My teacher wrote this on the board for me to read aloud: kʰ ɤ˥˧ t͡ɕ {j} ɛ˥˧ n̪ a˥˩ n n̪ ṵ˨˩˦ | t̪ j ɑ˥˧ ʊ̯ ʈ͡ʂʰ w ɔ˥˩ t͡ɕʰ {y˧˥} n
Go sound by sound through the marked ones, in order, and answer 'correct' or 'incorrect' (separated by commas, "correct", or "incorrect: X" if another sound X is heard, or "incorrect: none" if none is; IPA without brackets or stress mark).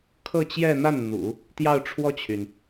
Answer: correct, incorrect: y˩